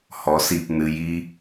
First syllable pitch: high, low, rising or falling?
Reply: rising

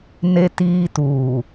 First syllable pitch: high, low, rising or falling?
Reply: high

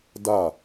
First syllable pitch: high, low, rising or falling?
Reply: falling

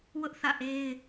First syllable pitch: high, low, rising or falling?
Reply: high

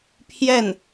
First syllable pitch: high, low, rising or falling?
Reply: falling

